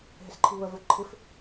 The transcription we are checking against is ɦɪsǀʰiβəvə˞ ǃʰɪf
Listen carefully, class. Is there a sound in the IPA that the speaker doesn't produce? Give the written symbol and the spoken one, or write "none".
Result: ǀʰ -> ǃʰ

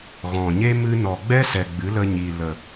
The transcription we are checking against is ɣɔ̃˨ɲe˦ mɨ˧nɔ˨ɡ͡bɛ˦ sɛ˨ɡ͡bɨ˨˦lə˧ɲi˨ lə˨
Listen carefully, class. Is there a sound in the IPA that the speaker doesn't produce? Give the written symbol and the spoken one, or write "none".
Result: none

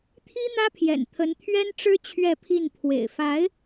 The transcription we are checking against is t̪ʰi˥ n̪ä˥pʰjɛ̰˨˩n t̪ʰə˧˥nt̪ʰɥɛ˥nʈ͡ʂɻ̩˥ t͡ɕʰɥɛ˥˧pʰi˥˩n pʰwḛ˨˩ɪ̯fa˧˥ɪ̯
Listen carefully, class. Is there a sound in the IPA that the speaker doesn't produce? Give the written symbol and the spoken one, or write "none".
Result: none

